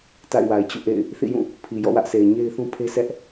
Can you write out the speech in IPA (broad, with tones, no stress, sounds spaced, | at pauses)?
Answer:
t a̰˦˨ ɪ̯ w a˨ ɪ̯ t͡ɕ ṵ˦˨ ʔ ḛ˦˨ ɪ̯ | θ ḭ˦˨ j ũ˦˨ | pʰ i˨ j ɔ̰˦˨ w ä˦ ʔ sʰ e˨ ɪ̯ ɲ e˦ ɪ̯ θ ũ˦ pʰ e˦ sʰ ɛ˦ ʔ